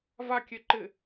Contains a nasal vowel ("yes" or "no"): no